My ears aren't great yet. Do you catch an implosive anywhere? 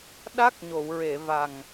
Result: yes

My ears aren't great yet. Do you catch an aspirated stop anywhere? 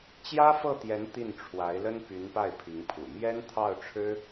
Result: yes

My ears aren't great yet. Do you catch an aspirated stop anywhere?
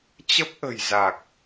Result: no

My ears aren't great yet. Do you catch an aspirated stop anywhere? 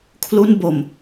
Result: yes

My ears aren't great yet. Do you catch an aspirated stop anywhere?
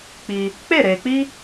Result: no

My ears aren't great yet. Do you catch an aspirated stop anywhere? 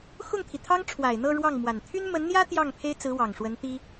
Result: yes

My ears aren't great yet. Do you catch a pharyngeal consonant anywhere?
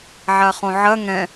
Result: yes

